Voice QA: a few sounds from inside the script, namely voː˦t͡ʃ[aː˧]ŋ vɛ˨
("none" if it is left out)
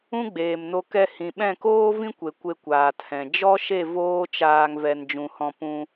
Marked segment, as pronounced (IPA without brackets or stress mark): aː˧